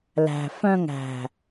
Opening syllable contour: low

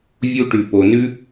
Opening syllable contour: high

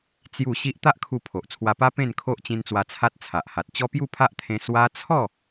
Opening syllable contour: falling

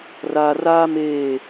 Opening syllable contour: low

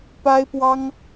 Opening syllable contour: high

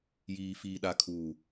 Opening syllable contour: low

